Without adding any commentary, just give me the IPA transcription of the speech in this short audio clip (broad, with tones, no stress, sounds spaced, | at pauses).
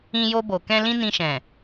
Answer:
ĩ˧ j o˧ b o˨ k ɛ̃˧ l ĩ˦ n ĩ˧ ʃ ɛ̃˨